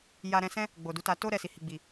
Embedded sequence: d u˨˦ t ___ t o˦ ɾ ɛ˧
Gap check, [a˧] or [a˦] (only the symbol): a˧